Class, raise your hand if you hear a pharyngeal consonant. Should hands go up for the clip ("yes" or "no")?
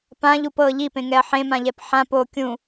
yes